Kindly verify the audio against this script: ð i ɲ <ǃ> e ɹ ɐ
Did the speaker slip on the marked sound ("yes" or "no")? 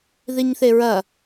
yes